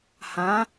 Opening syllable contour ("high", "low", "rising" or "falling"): rising